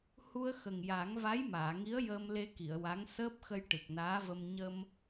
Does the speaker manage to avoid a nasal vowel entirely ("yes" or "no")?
yes